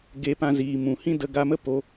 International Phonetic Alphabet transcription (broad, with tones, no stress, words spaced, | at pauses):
ɡe˧pã˧ziː˨mũ˨ hĩ˦də˧ɡa˧mə˦ po˧